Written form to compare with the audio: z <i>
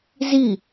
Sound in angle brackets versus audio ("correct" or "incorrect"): correct